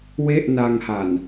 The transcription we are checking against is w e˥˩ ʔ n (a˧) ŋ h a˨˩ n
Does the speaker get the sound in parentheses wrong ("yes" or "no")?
no